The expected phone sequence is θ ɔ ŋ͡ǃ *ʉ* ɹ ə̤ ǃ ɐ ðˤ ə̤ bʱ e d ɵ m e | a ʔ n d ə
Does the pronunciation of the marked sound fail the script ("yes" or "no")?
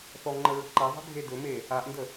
yes